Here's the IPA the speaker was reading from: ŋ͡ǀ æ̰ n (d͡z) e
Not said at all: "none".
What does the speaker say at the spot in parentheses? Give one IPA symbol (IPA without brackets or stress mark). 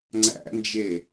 d͡ʒ